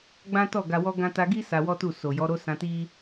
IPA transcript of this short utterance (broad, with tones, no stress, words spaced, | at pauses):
ɡ͡bã˦tɔ˦˨ ɡa˧wɔ˦ɡã˦ ta˧ɡi˦ sa˧wɔ˦tu˦˨ so˨jɔ˨˦ɾo˦ sã˧ti˦